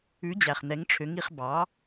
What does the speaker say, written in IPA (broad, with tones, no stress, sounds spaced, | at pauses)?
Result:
ʉ˩˥ d͡ʑ æ˩ χ n̪ ɛ˩˥ ŋ ʈ͡ʂʰ ø˩˥ ŋ i˩˥ χ b ɑ˩˥